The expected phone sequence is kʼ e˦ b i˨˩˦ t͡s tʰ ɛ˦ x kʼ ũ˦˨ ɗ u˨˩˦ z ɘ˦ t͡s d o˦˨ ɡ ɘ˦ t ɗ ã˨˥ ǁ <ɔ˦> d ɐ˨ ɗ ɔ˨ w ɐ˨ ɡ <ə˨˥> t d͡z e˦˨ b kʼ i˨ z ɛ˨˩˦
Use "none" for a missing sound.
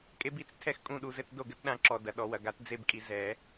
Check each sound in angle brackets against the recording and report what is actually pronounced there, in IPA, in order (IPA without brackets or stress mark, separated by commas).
ɔ˨, a˨˥